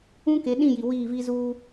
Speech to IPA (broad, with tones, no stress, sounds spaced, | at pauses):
ũ˦ k e˨˦ ɗ ĩ˦˨ j i˨ w iː˦˨ v i˦ z uː˦